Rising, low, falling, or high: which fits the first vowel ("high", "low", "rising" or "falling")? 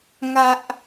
high